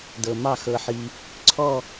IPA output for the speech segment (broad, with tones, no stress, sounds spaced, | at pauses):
d ɤ˧ m ɑ˥˧ x ɤ˧ ħ i˧ | ǀʰ ɔ˥˧